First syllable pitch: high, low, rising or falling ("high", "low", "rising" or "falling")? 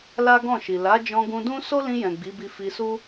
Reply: high